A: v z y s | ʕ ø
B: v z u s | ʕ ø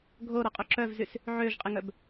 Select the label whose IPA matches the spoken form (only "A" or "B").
A